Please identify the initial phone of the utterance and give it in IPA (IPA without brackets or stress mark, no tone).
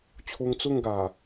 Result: t͡ɕʰ